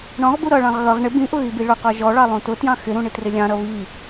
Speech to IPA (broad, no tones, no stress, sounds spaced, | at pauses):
ɳ ɔ̃ ʁ b u ɾ ʌ ɭ ɑ̃ ʁ ɣ ʌ ʁ ɳ ɪ b ĩ ʔ ʊ ɣ i b i ɭ ʊ q ɔ ʒ ɔ ɭ ɑ lˠ ũ t ʊ t j ɑ̃ x ɪ ɾ ũ ɳ ɪ t r ɪ lʲ ɑ̃ ɾ ʌ β i